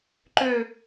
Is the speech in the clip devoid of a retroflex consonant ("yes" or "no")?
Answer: yes